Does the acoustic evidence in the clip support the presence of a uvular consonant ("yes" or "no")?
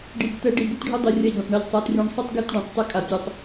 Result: no